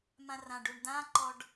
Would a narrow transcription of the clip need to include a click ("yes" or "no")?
yes